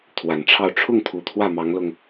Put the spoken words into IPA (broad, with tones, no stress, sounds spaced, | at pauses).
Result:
t̪ʰ w a˨˩ n ʈ͡ʂʰ ɑ˥˧ ʊ̯ ʈ͡ʂʰ ʊ˥˩ ŋ t̪ʰ u˨˩ t̪ʰ w ä˥˩ m ɑ˧˥ ŋ l ʊ˧ ŋ